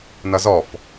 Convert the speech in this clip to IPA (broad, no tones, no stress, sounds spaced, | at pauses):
n ʌ z ɔ f